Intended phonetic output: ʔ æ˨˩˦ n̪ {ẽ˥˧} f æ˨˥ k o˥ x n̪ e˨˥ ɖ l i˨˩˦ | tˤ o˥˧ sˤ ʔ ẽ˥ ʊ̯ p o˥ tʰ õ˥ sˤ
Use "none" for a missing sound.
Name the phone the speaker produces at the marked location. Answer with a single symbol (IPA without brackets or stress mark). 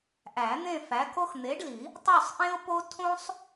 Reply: ẽ˥˧